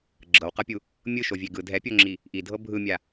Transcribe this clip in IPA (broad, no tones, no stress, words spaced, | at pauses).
ɡ͡ǁɤwqɤpʲu | mʲɯʃovʲe ɡɯ dʱɛpʲoŋ͡ǁi | ʔidʱɤ bʱɯmʲa